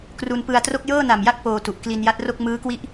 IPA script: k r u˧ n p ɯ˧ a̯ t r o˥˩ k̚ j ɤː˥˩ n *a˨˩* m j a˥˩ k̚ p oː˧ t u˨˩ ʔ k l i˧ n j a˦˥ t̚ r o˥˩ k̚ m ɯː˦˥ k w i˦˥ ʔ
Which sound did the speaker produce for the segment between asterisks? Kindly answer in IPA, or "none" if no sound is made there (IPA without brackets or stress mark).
a˨˩